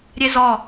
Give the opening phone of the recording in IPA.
ɾʲ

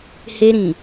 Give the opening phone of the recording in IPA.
h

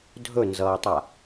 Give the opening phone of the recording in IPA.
dʱ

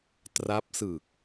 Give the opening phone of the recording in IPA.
t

